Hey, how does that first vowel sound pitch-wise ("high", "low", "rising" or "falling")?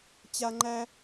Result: high